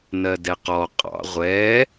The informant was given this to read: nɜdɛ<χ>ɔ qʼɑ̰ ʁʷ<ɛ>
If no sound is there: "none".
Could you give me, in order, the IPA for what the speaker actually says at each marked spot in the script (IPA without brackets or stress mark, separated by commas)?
q, ɛ